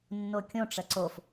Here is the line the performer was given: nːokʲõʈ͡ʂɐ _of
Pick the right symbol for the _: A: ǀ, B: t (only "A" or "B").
A